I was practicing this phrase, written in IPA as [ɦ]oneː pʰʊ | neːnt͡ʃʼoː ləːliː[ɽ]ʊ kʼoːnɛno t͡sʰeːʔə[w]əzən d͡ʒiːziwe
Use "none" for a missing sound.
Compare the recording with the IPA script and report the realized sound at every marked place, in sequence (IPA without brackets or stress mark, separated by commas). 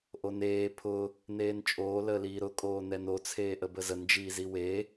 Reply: ʔ, ɾ, b